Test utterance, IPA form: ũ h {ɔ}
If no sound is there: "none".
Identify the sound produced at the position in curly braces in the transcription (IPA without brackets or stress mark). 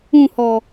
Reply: ɔ